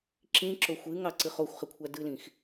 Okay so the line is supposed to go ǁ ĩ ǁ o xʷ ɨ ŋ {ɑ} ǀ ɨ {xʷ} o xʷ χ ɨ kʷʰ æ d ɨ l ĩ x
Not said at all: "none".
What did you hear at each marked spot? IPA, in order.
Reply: ɑ, χ

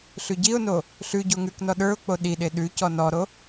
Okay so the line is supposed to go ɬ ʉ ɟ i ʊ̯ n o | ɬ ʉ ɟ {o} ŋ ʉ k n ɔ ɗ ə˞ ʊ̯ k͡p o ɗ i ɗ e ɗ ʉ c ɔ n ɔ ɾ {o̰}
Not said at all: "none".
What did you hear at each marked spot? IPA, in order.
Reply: o, o

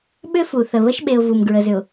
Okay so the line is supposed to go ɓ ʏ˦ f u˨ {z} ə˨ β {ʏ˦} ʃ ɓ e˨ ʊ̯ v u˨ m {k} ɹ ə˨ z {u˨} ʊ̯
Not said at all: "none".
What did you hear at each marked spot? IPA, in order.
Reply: θ, ə˦, ɡ, ʏ˨

